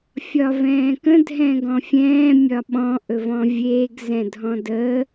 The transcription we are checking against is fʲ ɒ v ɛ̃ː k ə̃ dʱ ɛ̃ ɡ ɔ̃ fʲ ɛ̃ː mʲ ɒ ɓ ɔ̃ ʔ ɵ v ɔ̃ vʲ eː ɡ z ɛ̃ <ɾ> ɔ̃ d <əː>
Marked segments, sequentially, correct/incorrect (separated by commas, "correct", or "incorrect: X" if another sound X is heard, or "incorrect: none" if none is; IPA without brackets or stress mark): incorrect: dʱ, correct